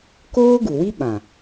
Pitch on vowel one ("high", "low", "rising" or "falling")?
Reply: high